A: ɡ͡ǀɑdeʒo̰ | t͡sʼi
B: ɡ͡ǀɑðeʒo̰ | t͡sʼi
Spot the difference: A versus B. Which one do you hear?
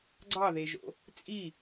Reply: B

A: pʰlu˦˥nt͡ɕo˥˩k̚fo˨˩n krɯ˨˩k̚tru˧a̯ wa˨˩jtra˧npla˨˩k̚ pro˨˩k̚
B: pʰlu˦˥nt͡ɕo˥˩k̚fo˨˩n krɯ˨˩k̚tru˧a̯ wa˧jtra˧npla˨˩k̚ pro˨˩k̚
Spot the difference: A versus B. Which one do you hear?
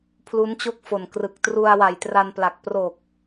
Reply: A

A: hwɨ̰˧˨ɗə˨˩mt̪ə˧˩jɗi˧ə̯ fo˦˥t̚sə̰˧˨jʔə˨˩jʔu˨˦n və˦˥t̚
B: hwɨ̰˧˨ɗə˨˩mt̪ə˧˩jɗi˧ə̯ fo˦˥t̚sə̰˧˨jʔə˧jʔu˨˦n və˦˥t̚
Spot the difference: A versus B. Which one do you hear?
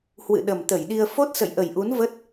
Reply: A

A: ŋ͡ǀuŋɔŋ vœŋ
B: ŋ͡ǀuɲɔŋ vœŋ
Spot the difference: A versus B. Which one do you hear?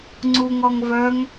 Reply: A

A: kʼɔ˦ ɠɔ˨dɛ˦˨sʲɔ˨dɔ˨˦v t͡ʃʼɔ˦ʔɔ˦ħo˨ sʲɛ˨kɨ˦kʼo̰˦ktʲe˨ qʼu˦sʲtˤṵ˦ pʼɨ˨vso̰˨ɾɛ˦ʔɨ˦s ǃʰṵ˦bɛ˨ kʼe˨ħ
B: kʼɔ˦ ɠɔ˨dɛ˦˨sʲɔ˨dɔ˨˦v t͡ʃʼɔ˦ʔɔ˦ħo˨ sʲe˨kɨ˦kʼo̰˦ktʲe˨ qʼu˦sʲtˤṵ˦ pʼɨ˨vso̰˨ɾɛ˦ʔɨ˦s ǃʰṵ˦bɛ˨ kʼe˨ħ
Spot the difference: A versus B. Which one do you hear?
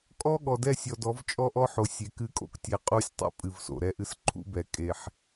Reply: B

